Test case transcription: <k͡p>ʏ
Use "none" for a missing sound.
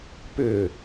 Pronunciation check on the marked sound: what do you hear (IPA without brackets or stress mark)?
p